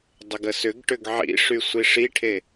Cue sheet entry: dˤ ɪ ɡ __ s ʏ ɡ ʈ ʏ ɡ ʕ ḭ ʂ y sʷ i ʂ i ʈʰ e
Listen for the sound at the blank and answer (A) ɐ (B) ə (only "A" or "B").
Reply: B